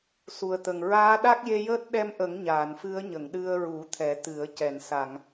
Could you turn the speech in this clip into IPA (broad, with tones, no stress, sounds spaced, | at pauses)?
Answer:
s u˨˩ ə̯ t̪ ə˨˩ ŋ ɹ aː˧˥ ɗ a˦˥ k̚ j e˧ j əː˦˥ t̚ ɗ ɛ˧ m ʔ ə˨˩˦ ŋ ɲ aː˨˩˨ n f ɨ˧˥ ə̯ ɲ ə˨˩˨ ŋ ɗ ɨ˧ ə̯ ɹ u˨˩˦ t̪ʰ ɛ˨˩˦ t̪ ɨ˨˩˦ ə̯ c ɛ˨˩˨ n s a˨˩˨ ŋ